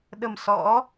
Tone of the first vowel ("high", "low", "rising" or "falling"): low